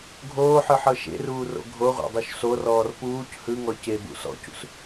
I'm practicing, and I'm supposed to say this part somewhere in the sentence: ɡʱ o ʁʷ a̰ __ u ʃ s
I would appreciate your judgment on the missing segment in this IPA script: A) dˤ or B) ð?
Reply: A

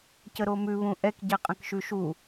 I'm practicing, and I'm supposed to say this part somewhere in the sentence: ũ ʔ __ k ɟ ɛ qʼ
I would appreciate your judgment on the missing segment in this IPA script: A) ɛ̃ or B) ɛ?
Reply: B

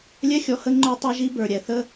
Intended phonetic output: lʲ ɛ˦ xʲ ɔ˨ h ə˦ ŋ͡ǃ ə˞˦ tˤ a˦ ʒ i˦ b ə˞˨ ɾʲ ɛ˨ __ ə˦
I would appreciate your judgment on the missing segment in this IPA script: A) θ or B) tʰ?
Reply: A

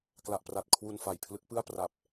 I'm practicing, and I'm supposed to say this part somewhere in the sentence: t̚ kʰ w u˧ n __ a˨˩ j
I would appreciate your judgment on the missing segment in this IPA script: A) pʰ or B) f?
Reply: B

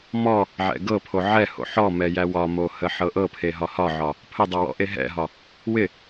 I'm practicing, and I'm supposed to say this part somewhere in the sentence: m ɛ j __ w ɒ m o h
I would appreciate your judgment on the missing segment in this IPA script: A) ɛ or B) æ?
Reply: B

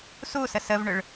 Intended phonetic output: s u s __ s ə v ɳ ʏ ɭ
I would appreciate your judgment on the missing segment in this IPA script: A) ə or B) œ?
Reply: A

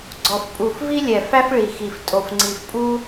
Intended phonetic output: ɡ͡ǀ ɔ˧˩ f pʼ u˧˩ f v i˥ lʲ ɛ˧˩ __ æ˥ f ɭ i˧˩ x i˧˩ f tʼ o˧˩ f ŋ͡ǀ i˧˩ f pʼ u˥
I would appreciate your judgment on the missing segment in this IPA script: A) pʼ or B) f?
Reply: B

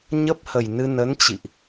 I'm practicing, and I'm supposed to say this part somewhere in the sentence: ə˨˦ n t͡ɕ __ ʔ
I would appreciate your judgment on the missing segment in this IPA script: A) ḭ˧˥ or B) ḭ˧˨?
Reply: B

